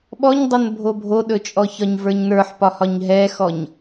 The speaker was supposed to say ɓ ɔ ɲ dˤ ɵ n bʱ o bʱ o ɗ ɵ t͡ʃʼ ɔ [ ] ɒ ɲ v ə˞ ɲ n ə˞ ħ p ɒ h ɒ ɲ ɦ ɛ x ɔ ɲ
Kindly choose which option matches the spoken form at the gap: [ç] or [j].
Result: ç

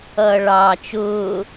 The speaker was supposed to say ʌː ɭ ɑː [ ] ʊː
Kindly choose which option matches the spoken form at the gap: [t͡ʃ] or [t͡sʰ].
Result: t͡ʃ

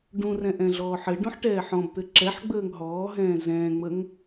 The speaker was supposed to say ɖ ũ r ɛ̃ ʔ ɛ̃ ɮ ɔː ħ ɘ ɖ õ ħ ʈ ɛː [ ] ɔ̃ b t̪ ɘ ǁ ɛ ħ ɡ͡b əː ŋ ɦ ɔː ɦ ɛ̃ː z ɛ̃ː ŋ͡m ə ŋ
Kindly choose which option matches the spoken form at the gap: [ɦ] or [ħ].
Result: ħ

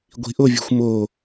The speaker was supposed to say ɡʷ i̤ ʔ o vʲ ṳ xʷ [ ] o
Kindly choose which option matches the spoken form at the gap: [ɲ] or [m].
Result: m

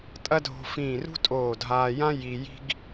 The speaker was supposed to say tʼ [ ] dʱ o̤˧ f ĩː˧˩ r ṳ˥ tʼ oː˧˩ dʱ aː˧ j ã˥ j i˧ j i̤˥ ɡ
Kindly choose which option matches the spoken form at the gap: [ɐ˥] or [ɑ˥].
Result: ɐ˥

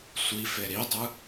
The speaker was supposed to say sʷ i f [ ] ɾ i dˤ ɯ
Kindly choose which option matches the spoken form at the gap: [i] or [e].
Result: e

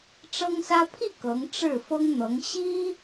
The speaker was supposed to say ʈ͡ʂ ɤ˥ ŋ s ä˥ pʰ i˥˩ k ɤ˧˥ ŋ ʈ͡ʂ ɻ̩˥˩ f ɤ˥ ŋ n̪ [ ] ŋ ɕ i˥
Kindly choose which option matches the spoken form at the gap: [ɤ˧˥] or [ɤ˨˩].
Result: ɤ˧˥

